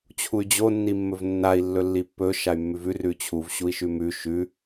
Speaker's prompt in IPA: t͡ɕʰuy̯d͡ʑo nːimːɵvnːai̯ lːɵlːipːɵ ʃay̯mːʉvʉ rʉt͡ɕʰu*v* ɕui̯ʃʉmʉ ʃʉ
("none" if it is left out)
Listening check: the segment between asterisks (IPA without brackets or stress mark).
v